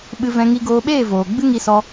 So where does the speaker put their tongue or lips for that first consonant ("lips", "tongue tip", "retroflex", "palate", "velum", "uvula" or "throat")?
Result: lips